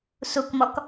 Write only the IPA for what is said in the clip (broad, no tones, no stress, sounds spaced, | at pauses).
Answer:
s u k m ɔ k